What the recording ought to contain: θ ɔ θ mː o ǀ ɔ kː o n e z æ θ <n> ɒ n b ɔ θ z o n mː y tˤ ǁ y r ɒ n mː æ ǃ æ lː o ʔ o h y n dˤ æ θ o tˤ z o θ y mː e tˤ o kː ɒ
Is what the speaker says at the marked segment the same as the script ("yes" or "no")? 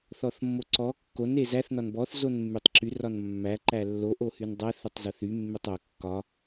yes